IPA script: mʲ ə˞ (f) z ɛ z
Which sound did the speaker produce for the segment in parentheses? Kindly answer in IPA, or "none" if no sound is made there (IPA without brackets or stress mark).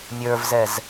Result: v